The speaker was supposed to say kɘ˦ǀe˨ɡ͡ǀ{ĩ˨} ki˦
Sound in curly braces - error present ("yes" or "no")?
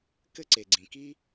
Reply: no